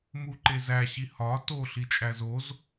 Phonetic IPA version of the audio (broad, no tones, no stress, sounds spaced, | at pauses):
m u ǃ e z æ ɕ i h ɒ t o ɬ i t͡ʃʼ æ z o z